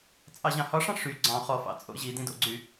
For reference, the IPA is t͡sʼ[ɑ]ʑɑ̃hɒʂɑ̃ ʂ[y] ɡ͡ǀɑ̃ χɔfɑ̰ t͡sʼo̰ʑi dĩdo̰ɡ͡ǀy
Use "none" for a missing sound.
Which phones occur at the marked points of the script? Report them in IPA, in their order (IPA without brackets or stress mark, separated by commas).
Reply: ɑ, y